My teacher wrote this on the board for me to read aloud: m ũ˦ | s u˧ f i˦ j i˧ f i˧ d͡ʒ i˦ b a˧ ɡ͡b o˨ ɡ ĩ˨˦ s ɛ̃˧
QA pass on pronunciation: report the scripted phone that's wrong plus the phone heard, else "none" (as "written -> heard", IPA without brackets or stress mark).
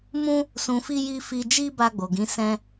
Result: u˧ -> ũ˧